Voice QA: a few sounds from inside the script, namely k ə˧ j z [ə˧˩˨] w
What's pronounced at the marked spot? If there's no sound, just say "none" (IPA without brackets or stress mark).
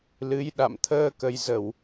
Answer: ə˧˩˨